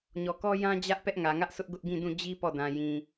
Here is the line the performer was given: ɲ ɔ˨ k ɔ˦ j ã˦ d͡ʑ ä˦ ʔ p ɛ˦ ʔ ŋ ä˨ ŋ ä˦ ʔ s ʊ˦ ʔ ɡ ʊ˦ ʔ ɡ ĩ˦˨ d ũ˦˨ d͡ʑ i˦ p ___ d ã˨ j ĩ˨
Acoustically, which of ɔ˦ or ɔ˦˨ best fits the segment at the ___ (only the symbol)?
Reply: ɔ˦˨